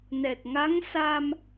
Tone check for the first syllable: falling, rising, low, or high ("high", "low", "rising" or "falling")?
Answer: low